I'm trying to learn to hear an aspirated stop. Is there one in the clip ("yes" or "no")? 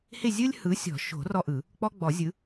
no